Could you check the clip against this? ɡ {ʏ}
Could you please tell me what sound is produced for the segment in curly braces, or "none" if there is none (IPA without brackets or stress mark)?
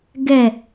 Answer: ɛ